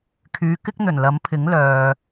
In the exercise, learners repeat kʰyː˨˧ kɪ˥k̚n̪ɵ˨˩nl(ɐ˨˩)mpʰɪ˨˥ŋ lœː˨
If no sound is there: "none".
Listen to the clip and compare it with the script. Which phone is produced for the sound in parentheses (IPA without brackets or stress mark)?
ɐ˨˥